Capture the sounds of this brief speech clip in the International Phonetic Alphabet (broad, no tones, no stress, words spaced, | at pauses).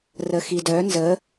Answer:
rəxidœ nzə